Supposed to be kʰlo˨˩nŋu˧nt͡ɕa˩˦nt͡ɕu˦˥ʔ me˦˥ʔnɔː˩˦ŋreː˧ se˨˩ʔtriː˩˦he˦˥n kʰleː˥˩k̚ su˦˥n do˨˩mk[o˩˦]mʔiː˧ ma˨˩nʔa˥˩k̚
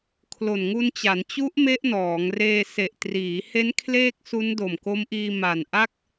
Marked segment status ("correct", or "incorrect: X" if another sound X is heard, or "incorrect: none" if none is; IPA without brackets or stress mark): incorrect: o˦˥